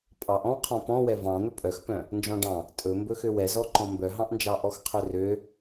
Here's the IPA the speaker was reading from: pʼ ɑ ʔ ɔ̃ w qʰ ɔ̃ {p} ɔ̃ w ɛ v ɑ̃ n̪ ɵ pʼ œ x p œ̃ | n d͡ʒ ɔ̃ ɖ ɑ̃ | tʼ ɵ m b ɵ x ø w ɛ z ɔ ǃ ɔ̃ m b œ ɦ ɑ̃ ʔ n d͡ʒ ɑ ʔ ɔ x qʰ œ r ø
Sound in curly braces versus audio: correct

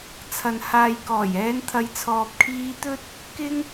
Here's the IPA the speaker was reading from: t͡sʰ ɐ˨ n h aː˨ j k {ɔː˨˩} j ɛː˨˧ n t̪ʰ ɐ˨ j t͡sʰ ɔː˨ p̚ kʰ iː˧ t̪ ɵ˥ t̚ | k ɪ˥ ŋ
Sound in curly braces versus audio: correct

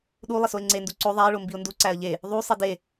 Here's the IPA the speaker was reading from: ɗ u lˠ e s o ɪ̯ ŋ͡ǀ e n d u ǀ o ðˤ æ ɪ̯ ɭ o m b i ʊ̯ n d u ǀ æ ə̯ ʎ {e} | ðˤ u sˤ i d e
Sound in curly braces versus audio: correct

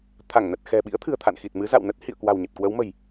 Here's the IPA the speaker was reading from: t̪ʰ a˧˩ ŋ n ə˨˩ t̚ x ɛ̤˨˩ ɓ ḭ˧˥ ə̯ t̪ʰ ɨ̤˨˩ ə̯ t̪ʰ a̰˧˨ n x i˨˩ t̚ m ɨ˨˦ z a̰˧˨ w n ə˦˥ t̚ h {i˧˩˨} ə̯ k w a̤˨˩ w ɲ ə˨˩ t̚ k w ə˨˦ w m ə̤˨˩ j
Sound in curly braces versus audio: incorrect: ḭ˧˨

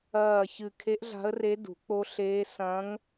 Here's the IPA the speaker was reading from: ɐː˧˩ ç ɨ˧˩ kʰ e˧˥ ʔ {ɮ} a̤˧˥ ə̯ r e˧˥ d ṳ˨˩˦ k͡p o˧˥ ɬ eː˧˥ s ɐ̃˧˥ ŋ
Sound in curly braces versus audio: correct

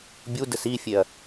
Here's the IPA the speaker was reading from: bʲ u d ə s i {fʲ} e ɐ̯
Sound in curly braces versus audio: correct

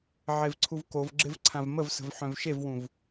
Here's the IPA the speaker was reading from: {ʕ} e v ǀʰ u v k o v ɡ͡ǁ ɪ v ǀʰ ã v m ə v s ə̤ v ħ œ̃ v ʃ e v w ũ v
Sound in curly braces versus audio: correct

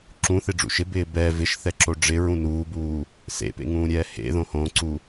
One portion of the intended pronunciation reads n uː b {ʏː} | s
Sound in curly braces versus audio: incorrect: uː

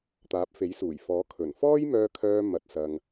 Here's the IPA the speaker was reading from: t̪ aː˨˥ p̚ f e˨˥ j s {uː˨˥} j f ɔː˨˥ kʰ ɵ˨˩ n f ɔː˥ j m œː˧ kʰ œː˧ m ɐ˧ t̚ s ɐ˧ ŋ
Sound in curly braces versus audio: incorrect: uː˨˩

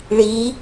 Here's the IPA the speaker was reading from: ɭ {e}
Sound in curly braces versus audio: incorrect: i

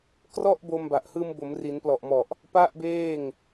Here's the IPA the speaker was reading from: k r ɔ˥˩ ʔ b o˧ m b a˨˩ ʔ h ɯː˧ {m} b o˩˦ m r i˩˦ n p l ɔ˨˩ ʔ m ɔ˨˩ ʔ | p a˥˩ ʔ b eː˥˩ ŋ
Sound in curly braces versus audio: correct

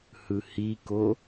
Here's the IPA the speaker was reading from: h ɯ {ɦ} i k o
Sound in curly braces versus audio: incorrect: h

